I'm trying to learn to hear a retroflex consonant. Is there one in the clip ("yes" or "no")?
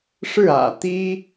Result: yes